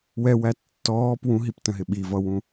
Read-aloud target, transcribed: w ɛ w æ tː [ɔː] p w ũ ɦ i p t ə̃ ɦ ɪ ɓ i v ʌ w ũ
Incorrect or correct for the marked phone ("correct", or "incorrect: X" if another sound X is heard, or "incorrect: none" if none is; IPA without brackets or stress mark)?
correct